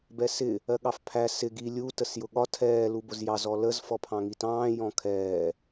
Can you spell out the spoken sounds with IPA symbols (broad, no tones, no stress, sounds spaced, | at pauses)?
b ɛ s ɪ | ɜ ɠ ɑ f pʰ æ s ɪ ɡ i lʲ u t ə s j ʊ ɠ ɒ tʰ ɛː l u b ʊ z j ɑ z ɔ l ə z f ɔ pʰ ɑ̃ ŋ i t ɑ̃ː j ɔ̃ kʰ ɛː